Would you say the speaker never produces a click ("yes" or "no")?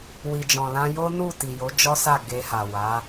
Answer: yes